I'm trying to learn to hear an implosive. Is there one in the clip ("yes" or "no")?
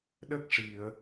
yes